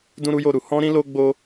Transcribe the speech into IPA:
d ũ˦ ɾ u˦ j o˦˨ ɾ u˧ h ɔ̃˦ ɾ ĩ˦ l o˦ ɡ͡b o˦

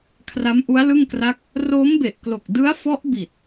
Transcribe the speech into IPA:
kʰ r a˦˥ m ʔ u˦˥ a̯ l ɯ˥˩ ŋ k r a˥˩ k̚ | r oː˦˥ m b e˨˩ ʔ k l o˨˩ k̚ d ɯ˦˥ a̯ f ɔ˦˥ ʔ b i˨˩ t̚

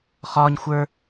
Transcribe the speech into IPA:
χ ɒː ɲ xʷ ə˞

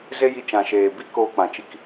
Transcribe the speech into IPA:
z e˦ j i˧ t͡ʃ ã˨ ʃ eː˨ b i˦˨ k oː˧ k͡p ã˨ t͡ʃ i˧ k

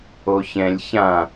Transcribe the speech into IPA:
o ç ɛ̃ lʲ ç ã

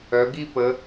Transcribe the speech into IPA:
œ˩˧ ɡ i˥˧ p ə˩˧

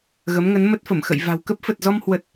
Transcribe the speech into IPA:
ɣ ə˨˦ m ŋ ə˨˦ n m ə˦˥ t̚ f ə˧˩ m x ə̰˧˨ j v a̤˨˩ w k ə˦˥ p̚ f ə˨˩ t̚ z ɔ˧ m h w ə˨˩ t̚

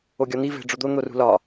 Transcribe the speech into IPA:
o ɡʲ ɒ n̪ i v e̤ ɖ͡ʐ o d̪ o n̪ o r ṳ l ɒ

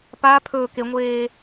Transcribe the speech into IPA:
p a pʰ ɵː k e ŋʷ eː

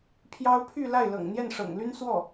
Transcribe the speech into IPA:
pʰ j ɑ˥ ʊ̯ pʰ y˥˧ l a˥˩ ɪ̯ l ɤ̰˨˩ ŋ n̪ j ɛ˥˩ n ʂ ɤ̰˨˩ ŋ l y˥ n s w ɔ˥˩

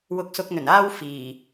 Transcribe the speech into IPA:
w ʊ˨˥ k̚ s ʊ˨˥ k̚ n̪ ɵ˨˩ n aː˥ w f iː˨˩

